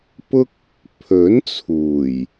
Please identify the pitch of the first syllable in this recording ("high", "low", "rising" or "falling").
high